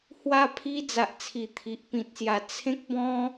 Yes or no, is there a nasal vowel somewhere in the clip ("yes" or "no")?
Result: yes